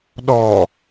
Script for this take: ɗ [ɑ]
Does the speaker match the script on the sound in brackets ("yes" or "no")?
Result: no